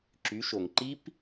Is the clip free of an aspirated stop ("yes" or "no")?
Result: yes